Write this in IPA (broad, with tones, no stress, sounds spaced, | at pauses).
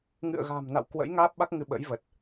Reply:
ŋ ɨ̰˧˨ ə̯ ɣ a̤ː˨˩ m n a̰˧˨ w k w ə̰˧˥ j ŋ aː˦˥ p̚ ɓ a˦˥ k̚ ŋ ɨ˧ ɓ ə̰˧˥ j v ə˨˩ t̚